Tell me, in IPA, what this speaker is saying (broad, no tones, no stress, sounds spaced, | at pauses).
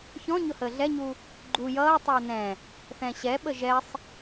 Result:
ç ɔ̃ ɲ ʊ h əː ɮ ɛ ɲ u | ɡ͡ǃ u j ʌː tˤ ʌː n ɛ̃ | θ ɛ̃ ɕ ɛ ɓ ə ʒ ɛ sˤ